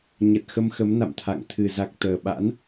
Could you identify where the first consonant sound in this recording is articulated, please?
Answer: palatal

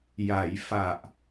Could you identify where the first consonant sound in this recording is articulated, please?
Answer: palatal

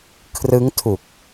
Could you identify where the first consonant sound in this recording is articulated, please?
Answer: velar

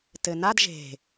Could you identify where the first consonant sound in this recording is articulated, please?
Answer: alveolar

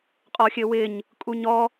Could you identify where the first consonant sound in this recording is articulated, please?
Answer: uvular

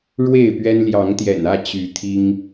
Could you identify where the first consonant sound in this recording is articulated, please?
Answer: retroflex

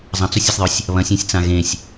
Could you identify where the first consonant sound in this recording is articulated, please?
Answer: alveolar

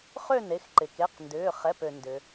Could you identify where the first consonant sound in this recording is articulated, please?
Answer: uvular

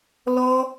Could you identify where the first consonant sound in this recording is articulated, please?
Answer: alveolar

